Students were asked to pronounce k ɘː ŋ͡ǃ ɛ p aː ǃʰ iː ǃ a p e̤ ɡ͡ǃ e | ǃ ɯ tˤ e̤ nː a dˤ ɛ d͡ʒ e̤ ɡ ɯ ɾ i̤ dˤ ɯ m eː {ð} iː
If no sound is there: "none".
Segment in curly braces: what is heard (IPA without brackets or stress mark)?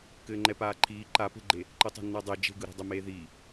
ð